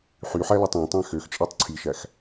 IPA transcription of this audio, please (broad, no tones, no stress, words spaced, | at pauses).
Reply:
ħyħælɑtˤ ɑ̃tˤæ̃ xøxt͡ʃʼætˤ ǀʰiʃæx